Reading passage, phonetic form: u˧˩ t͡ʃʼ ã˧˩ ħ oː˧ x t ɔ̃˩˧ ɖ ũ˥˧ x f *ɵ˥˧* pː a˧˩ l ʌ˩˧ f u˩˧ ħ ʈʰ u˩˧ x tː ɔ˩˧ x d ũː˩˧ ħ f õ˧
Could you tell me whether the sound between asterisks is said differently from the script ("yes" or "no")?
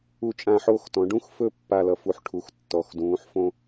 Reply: no